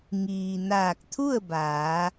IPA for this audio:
ŋ iː˩ n aː˧˩ k̚ t̪ʰ u˥˨ ə̯ b aː˩˧

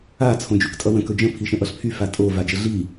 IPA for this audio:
a t͡sʰ õ d͡ʒ y k tʼ ʌ w ə̃ k ɵ d͡ʒ ə̃ pʰ i ʃ ə̃ ʔ ʌ ɬ pʰ y f a tʼ o v a d͡ʒ ə ɮ i

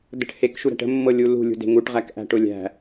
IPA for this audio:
d ə̤ ʈ h e k ʃ u ɾ æ̤ ʈ ə̤ mː ɤ lʲ u l ṳ lʲ ṳ d e̤ ŋ u ʈ ʁ æ k ʔ æ̤ ʈ ʊ lʲ æ̤

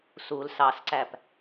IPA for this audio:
s u l s ɑ s ǀ æ p

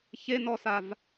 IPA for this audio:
ç e n ɔ s a v

